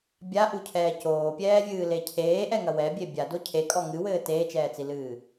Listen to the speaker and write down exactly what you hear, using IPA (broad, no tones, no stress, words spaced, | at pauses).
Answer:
bʲaʔucʰɛː coːpʲɛːvʲɨːle cʰeːʔɛŋɐ wɛbʲe bʲado cʰekʼɔ ŋɨwɘː teːt͡ʃɛːt͡silɨː